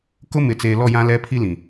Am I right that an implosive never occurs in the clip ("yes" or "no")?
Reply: yes